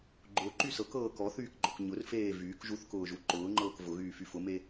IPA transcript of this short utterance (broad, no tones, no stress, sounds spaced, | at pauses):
ɡ͡ǃ ʊː ǃ y s ɤ k ɤː k ɔ θ yː k ɡ͡ǃ ɔ k ɲ ʊ r f eː v yː k ʒ u θ k ʊː ʒ u ǃ ʊː ŋ͡ǃ ɤː k v ʊ ɣ yː f y f ʊ m e